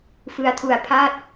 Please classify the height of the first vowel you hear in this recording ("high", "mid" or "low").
high